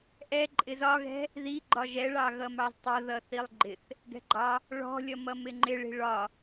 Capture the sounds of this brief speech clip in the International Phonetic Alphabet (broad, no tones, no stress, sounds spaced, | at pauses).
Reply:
ʔ ɛ ǃʼ ɪ z ɒ ɣ ɛ̤ | ð i ɡ͡ǃ ɒ ʒ ɛ ɭ ɑ ɣ ʌ m ɑ z tˤ ʌ ð ʌ θ i lˠ ɡ͡ǃ ɪ θ | ɡ ɛ̤ ɡ͡ǃ ɑ | ɭ ɔ̤ lʲ ʌ m ʌ m ɪ ŋ͡ǃ ɪ ɭ i̤ ɭ ɒ